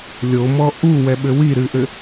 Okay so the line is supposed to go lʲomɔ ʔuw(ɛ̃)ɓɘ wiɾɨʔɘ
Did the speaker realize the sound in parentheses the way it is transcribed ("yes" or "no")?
no